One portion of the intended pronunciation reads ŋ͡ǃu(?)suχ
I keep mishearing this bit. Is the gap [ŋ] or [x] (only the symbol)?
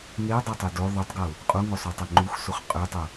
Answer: x